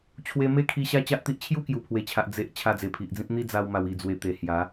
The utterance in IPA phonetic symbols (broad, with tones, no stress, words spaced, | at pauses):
t͡ɕʰwe˧me˦kʰi˧ ɕa˦t͡ɕa˦ʔt̪i˦ʔ t͡ɕʰju˥˧kju˨˩pʰwe˨˩t͡ɕʰa˨ʔ d͡ze˨ʔ t͡ɕʰa˧d͡ze˨˩pʰi˨ʔd͡zĩ˦p̚ n̪i˦d͡za˧wma˨˩w i˨˩d͡zwe˨˩ t̪e˨˩hja˨˦